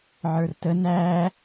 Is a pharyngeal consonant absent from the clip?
no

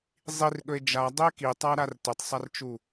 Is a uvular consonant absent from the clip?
yes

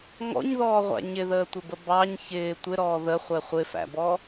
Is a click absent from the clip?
yes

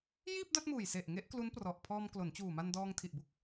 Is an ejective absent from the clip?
yes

